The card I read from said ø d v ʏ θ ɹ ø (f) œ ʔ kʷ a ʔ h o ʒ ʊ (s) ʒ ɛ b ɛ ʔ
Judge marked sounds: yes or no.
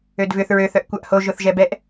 no, no

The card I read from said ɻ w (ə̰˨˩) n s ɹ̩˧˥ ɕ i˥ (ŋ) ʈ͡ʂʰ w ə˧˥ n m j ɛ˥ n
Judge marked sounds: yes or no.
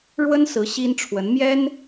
no, no

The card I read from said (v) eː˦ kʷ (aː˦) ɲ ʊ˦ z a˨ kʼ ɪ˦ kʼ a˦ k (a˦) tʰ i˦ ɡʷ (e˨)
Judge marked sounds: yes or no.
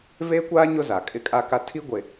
yes, yes, yes, yes

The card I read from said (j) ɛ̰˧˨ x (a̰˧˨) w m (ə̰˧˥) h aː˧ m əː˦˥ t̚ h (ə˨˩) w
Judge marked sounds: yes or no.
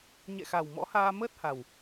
no, no, no, no

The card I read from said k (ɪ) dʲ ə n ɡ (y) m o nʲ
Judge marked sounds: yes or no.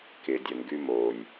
yes, yes

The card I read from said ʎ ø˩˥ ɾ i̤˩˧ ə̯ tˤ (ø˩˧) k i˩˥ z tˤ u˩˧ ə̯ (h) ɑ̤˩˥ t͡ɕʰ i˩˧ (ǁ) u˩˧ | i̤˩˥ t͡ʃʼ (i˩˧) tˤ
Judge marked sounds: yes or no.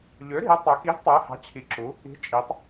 yes, yes, yes, yes

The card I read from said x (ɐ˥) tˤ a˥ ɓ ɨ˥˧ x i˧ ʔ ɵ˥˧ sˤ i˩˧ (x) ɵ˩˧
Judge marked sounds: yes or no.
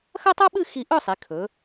yes, no

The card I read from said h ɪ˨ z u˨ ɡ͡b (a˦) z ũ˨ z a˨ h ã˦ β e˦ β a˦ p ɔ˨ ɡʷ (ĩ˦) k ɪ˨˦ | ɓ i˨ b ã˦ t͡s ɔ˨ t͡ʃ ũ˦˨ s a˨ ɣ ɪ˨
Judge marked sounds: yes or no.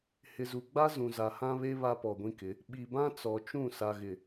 yes, yes

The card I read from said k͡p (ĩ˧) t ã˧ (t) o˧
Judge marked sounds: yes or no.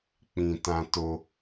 yes, yes

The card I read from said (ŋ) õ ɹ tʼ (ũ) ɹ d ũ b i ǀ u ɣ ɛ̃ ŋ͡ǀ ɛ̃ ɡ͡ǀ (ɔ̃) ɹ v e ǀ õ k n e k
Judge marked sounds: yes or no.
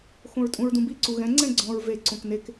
no, yes, yes

